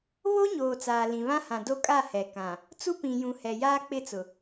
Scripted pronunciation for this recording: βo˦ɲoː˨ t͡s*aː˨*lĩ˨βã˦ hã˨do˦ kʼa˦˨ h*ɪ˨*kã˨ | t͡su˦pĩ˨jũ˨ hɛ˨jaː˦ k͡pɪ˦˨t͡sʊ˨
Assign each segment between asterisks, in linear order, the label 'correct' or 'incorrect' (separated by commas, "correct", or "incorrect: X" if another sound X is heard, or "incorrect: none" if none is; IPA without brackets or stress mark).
correct, incorrect: ɛ˨